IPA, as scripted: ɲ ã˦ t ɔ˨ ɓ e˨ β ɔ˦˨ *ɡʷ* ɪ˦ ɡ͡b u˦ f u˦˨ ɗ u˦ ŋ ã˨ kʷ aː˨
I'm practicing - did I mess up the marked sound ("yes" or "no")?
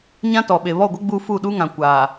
no